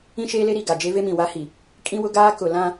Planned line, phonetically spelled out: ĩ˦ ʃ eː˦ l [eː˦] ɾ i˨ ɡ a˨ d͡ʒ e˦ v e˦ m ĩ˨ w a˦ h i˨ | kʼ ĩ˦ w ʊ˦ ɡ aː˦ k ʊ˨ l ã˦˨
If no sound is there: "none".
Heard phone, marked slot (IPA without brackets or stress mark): e˦